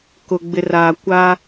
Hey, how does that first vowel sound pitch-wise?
low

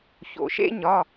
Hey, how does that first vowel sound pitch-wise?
low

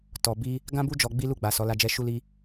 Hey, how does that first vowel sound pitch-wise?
low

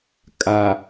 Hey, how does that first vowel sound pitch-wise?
low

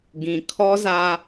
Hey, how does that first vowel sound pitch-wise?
low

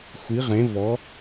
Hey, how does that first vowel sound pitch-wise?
rising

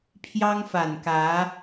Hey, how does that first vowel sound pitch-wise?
high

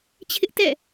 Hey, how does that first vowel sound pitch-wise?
high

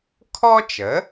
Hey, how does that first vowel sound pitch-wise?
high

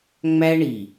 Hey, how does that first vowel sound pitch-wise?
high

